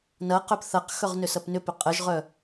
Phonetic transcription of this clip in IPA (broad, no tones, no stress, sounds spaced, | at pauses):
n ɐ q œ p θ ɐ q x œ ʁ n ʏ s ɐ p n ʏ p ʏ qʼ ə ʒ ʁ œ